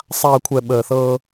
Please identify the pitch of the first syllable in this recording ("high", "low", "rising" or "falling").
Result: low